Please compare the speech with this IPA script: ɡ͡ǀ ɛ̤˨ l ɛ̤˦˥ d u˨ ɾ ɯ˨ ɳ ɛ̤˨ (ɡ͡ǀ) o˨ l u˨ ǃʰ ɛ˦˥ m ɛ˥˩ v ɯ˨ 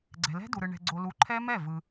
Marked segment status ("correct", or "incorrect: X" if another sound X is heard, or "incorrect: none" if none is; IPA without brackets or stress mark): correct